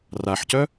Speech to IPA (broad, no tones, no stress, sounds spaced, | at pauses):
r a ħ c œ